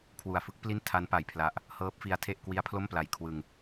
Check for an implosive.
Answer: absent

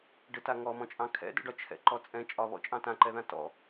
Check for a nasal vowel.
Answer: present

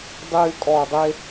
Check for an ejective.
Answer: present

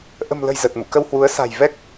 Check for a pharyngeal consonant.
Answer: absent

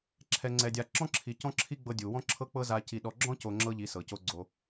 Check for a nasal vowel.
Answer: present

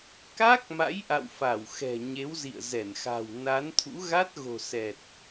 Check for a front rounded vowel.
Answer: absent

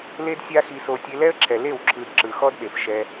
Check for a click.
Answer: present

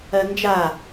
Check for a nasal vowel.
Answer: absent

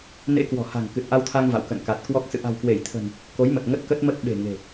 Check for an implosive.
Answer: present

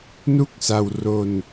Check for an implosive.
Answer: absent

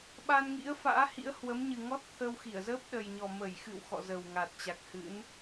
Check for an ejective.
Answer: absent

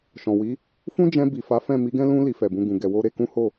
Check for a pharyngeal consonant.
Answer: absent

